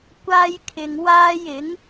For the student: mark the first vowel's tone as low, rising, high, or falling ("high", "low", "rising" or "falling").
high